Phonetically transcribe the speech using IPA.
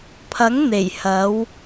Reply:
pʰɐ˨˥ŋn̪e˨˩jhɐ˨˧w

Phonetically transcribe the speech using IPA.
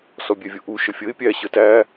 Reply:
sɔbʲɛvʲʊʔu ʃəfʲəɪ̯ pʲæ ɕətæ

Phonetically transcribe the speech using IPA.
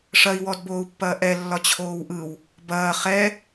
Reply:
ʂɐi̯wɔdboːu̯pːɐː ʔɛlːɒ t͡ɕʰoːwʔɯw | bɐː χɛ

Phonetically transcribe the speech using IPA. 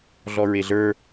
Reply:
ɮɔɹeɮə˞

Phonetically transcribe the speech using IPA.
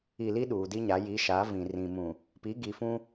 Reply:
i˨li˦ ɗuː˨di˦ɲa˨˦ ji˨˦ ʃa˨˦vĩ˨rĩ˨mũ˨ | pi˨˦ɡi˨fũ˦

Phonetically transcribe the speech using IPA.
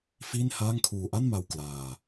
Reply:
fiː˥˩nhaː˥˩ŋkʰuː˧ ʔa˥˩nma˧w klaː˧

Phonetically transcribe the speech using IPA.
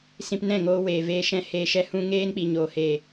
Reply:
sĩ˧pnɛ̃˦˨ŋoː˧ weː˨veː˧ ʃɛ̃˧ heː˧ʃɛ˦hũ˦ ŋeː˦nk͡pi˨ ɲoː˨ heː˨

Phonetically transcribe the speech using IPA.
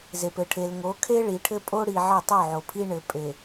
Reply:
ze˨pɘ˨ʈʰe˨l ŋo˨˦kʰe˦ ɭi˨ʈʰɘ˦pʼo˦ ɽi˨ ʕɘ˦˨tˤo˦˨ʕo˨pʰi˦ ɳɘ˨pʼe˨

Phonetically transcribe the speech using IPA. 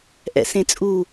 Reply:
ʔɛ̰sẽt͡sʼu

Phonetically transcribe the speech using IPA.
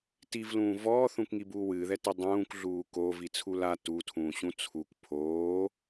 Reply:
tivlũː vɔːθũkŋibuː wɨːðɛti dˤũːkɮuː kovit͡sʰul a tutʰũːɕũ t͡sʰuk pʰoː

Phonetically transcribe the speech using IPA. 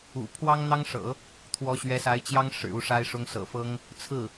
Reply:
ṵ˨˩ pʰwɑ˥ŋn̪ɑ˥ŋʂɤ̰˨˩˦ | t̪ʰwɔ˧˥ɕɥɛ˧˥sa˧˥ɪ̯t͡ɕjɑ˥ŋ ʂɻ̩˨˩u˥˩ʂa˥ɪ̯ʂʊ˥ŋ sɤ̰˨˩fɤ˥ŋ | t͡sʰɹ̩˥˩

